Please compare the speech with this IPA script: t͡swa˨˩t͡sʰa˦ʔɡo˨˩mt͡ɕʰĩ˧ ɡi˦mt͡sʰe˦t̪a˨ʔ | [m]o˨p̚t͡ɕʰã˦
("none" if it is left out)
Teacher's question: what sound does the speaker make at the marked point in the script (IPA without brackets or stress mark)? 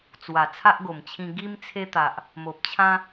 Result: m